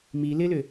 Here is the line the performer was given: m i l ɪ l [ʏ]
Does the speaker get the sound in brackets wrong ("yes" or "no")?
no